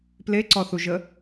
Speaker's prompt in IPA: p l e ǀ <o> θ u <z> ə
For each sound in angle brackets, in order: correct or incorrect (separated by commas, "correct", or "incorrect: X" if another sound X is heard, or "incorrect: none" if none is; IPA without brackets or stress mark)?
incorrect: ɔ, incorrect: ʒ